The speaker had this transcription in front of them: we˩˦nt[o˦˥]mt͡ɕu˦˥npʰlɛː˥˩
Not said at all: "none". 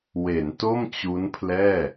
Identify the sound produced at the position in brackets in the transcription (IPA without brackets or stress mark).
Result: o˥˩